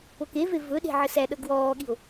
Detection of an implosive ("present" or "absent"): present